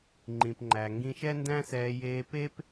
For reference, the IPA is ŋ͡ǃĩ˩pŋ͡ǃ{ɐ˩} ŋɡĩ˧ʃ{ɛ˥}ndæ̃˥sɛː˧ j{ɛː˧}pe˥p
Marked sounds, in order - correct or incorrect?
incorrect: æ˩, correct, incorrect: eː˧

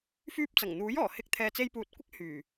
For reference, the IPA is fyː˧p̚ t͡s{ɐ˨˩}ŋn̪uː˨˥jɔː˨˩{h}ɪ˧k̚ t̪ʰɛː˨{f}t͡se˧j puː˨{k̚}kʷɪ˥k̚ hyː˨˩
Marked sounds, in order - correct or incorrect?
correct, correct, incorrect: none, incorrect: t̚

